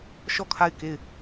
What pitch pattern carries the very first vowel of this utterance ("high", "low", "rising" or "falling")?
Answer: falling